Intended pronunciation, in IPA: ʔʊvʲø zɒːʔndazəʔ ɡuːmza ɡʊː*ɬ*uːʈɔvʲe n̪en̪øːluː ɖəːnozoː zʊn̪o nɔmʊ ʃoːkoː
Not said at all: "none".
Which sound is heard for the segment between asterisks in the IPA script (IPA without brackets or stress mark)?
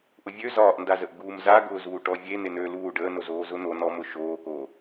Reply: z